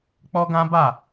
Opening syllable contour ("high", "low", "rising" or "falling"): high